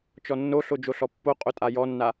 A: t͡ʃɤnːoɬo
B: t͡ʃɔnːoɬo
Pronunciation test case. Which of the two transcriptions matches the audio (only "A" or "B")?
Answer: B